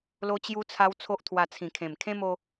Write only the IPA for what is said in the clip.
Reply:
lo˧t͡ɕju˧t͡sʰa˧w t͡sʰo˦ʔt̪ʰwa˧t͡sʰĩ˨˩kʰẽ˨˩m kʰẽ˦mo˧

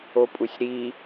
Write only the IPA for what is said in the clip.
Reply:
opʼusʲɾi

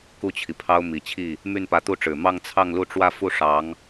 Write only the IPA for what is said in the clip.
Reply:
ku˥˩t͡ɕʰi˩pʰɑ˥ʊ̯ mi˨˩t͡ɕʰi˥˩ | my˥˩npä˧˥t̪u˥˩ʈ͡ʂɻ̩˨˩ mɑ˥˧ŋt͡sʰɑ˥˧ŋlu˥˧ʈ͡ʂwä˥˧ fu˥˩ʂɑ˧˥ŋ

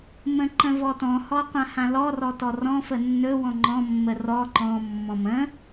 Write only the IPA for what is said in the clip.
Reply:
mə̃ǃə̃vɔtɔ̃ hɔqʷãhãlɔ rɔtɔrɔ̃ fənːɵ wɔ̃ŋ͡ǃɔ̃ mːərɔ ǃɔ̃ mːɔ̃mə̃

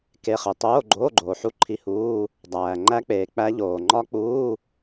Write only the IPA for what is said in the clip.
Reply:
ke˧˥˧χe˨ tˤoː˧˥˧ɡ͡ǃoː˧˥˧ ɡ͡ǃoː˨ħu˦˥ ǃʰi˧˥˧huː˧˥˧ | dˤæː˨ ŋ͡ǃæ˦˥k͡peː˨ k͡pæ˦˥ʎoː˨ ŋ͡ǃɒ˦˥k͡puː˧˥˧

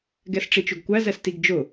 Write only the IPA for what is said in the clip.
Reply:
ɡɛsʈ͡ʂit͡ʃʊɡkʷæ zɛstiɡd͡ʒʊ

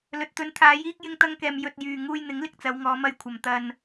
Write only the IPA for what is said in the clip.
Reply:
lɵ˨t̚t̪ɵ˨˥nt̪ʰaː˨˧ jiː˥k̚jɪ˥ŋt̪ɐ˥ŋkɛː˧m jɵ˧t̚jyː˨ ŋuː˧jn̪ɪ˨˥ŋlɪ˨˥k̚ t͡sɐ˨˧wŋɔː˨˧mɐ˧j kʷʰɐ˨mt̪ɐ˧n

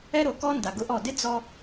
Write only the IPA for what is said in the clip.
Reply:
ɛ˦ɾo˨kɔ˦ nda˨ɡʊ˦ʔɔ˦˨ dɪ˦ d͡zɔ˦

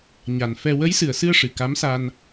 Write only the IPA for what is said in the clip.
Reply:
ɲa˨˩n fɛ˧ wə˧˥jsɨ˨˩ə̯sɨ˧ə̯ ʂɨ˨˩ka˧˥msa˧n

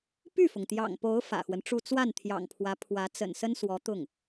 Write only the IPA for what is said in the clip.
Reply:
py˥˩fʊ˩ŋt̪jɑ̰˨˩ŋpo˧˥ʊ̯ fä̰˨˩xwə˦nʈ͡ʂu˥˧ t͡swa˥˩nt̪ʰjɑ̰˨˩ŋpʰwä˧˥ pʰwä˧˥ t͡sə̰˨˩nsə˥nswɔ˧˥t̪ʊ˥˩ŋ

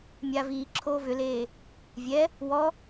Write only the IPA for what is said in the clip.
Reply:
mʲaːviːǁʰoː vʏleː | vʲɛ | wɔ

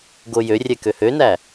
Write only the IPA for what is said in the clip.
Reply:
ɡojørʲɛ køhønæ

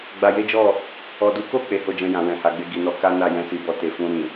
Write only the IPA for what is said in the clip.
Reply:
ɡ͡ba˧je˦d͡ʒɔ˦˨ | ɔ˨du˨˦ko˦˨ k͡pe˨˦ho˦˨d͡ʒɛ̃˧jã˨ wɛ̃˨ha˨˦ɡ͡be˦ ɡi˦nɔ˦ ka˦na˦˨ jɛ̃˧si˨bɔ˧ te˨fũ˧ɾĩ˨

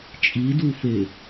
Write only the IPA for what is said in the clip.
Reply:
t͡ʃʼidufe

